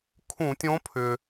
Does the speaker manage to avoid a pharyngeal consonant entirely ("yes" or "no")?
yes